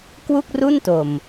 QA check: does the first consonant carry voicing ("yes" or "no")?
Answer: no